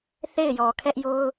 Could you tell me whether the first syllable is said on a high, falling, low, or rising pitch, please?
falling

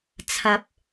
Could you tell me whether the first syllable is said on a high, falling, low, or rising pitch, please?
low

